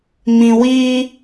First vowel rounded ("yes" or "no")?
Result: no